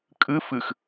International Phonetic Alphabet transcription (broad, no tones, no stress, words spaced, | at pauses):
kʼɨ fɨx